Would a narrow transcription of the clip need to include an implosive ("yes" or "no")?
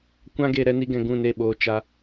yes